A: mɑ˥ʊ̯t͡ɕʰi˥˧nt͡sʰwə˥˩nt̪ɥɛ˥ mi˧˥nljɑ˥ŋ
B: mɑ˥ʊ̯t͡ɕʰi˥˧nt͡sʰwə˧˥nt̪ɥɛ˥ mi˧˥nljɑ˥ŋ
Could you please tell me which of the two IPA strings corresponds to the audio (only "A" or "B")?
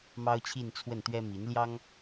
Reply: A